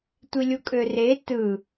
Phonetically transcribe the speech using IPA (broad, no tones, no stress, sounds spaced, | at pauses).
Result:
tʷ i lʲ u kʼ ø r e t ɯ